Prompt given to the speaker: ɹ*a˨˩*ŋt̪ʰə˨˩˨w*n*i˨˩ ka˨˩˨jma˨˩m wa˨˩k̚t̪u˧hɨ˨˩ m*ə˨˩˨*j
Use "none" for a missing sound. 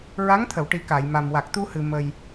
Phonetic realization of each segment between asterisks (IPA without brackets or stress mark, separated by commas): a˧˥, ʈ, ə˨˩